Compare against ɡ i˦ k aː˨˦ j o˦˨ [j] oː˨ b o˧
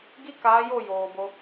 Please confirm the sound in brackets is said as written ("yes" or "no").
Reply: yes